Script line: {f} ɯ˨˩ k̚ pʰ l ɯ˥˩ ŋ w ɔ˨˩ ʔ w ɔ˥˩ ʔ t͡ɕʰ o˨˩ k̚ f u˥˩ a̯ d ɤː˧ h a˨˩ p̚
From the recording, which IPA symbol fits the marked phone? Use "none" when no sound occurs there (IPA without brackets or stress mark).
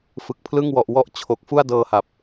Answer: f